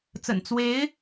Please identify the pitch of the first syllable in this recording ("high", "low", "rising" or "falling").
low